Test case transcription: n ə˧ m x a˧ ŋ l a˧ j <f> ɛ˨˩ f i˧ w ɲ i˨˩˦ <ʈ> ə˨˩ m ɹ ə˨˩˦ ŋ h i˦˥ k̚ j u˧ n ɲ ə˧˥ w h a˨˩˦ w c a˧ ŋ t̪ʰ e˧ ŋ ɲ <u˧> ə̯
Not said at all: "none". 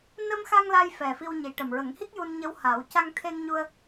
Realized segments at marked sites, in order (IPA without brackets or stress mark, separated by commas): f, ʈ, u˧